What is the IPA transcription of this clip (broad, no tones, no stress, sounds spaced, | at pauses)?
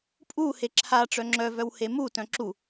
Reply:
pʼ u h e ǁʰ a ʈ͡ʂ œ ŋ͡ǁ œ v œ w h e m u t œ̃ ǁ u